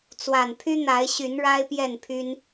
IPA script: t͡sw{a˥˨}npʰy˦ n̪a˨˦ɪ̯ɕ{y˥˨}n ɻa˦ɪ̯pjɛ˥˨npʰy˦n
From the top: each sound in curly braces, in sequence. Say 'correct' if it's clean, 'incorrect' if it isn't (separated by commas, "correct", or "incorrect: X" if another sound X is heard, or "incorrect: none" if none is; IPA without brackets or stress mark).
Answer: incorrect: a˨˩, incorrect: y˨˦